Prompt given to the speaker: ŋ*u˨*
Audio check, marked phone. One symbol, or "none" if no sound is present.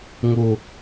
u˨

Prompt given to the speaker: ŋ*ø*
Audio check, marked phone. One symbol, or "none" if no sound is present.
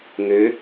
ø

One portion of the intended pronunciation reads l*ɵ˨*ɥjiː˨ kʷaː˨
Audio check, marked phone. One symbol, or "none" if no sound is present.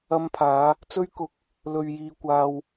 ɵ˨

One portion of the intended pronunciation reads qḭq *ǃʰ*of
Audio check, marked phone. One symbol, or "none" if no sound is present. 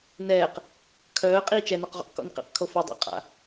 kʰ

